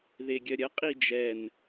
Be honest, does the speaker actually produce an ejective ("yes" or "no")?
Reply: yes